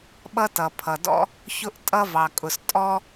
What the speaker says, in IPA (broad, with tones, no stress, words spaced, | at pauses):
ɓʌ˥tʌ˩pʰʌ˩dɔ̰˥ | çʊ˥ʔtʼʌ˥vɑ˩kʼʊ˩s tʼɔ˥